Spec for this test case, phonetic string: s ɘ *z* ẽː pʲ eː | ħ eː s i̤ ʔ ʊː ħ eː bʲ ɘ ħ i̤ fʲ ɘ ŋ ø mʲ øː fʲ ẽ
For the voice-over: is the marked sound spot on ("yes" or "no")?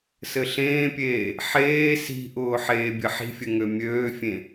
no